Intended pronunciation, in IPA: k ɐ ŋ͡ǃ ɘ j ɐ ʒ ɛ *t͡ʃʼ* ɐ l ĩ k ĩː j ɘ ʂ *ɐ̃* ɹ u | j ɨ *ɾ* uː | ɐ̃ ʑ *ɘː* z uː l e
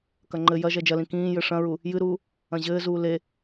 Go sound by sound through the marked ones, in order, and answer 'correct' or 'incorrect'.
incorrect, correct, correct, correct

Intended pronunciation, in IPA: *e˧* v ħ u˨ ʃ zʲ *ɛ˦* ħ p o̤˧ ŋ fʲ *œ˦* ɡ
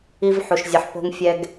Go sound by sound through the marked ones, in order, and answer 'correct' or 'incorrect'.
incorrect, incorrect, incorrect

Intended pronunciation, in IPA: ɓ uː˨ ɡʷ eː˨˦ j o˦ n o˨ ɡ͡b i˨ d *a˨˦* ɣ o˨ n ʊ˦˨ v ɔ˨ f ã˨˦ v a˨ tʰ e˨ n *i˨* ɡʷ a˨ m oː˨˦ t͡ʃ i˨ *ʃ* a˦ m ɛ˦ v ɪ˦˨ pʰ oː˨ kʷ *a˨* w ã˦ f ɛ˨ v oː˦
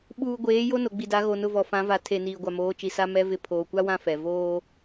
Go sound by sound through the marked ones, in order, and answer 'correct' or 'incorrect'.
correct, incorrect, incorrect, incorrect

